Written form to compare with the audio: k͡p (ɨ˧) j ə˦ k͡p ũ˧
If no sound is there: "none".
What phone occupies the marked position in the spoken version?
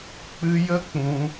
ɨ˧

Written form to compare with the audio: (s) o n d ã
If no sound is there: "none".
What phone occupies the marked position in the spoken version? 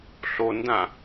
ɬ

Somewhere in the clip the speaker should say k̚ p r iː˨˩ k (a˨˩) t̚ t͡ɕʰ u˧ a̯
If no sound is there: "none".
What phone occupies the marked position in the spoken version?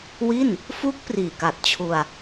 a˨˩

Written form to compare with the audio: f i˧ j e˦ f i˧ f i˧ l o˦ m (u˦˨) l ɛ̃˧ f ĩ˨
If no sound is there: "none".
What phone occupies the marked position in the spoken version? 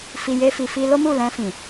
u˦˨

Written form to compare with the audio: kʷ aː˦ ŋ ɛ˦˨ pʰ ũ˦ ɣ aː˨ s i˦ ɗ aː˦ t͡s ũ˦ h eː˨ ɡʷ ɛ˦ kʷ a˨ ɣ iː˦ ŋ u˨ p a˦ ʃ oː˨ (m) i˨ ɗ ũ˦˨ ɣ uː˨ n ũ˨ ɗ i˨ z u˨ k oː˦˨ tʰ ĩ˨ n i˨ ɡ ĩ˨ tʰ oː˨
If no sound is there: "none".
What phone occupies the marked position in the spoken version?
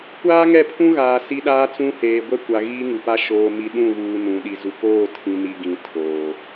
m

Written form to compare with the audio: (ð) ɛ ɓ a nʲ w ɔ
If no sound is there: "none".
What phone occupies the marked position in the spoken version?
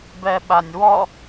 b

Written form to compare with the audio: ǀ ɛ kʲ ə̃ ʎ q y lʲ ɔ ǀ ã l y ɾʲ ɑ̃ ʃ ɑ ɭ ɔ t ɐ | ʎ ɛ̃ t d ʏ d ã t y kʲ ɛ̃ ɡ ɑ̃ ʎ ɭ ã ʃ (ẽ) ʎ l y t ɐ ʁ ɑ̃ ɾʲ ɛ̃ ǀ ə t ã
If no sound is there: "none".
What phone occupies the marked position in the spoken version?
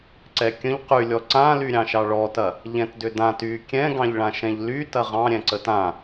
ɛ̃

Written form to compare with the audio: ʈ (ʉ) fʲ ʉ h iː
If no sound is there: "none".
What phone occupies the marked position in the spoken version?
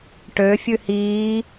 ø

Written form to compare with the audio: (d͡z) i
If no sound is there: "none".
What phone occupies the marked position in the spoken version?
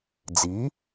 d͡z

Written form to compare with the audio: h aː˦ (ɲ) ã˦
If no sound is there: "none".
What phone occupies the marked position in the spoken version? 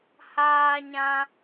ɲ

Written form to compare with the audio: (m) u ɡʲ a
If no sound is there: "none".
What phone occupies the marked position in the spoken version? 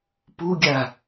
p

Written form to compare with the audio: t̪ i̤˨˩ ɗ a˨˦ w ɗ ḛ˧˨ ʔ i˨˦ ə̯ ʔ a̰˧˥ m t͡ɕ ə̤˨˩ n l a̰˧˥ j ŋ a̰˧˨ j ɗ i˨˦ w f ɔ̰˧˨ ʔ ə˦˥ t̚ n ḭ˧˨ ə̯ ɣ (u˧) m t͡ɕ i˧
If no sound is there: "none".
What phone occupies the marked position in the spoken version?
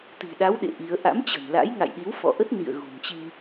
ṳ˨˩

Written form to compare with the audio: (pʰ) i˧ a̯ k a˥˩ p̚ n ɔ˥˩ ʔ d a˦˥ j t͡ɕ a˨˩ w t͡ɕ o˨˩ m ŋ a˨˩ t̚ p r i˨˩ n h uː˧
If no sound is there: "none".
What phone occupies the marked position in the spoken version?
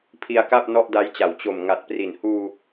pʰ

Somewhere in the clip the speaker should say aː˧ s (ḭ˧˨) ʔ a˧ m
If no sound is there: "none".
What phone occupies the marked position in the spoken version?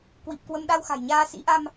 ḭ˧˥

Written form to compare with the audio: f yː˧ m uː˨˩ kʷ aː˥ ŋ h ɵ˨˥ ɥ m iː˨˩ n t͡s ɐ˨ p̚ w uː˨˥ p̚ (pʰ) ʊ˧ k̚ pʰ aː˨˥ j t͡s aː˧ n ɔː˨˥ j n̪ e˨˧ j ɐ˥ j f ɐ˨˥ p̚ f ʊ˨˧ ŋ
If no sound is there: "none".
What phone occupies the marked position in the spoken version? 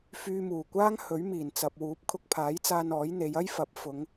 kʰ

